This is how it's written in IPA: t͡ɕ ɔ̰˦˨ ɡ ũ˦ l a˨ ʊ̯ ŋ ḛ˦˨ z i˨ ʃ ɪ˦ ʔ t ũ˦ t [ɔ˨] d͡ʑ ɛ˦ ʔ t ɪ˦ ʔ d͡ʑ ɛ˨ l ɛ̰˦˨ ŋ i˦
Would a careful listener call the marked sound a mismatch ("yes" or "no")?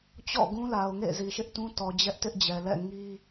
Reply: no